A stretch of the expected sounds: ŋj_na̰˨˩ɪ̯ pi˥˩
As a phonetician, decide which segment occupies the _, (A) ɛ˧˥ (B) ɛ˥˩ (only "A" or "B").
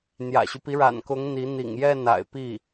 B